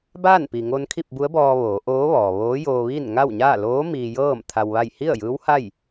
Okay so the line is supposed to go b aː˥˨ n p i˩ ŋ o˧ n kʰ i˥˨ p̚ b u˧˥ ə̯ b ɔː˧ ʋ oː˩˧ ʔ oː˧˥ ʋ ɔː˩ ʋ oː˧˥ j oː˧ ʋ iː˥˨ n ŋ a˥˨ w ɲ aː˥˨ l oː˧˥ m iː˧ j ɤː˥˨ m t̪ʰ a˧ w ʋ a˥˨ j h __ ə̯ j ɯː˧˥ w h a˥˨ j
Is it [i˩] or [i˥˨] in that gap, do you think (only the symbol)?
i˥˨